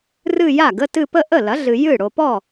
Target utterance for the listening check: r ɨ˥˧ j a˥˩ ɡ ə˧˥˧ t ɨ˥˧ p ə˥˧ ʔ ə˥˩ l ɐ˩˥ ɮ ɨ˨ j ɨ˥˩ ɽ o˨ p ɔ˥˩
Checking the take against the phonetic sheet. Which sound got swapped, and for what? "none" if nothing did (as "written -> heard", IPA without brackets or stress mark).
none